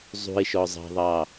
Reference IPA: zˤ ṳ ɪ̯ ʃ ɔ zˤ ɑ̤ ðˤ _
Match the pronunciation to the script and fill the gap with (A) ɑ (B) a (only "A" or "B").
A